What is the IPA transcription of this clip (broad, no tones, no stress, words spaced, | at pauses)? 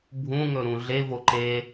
bʱũŋɵ ɾũɮevo ǃe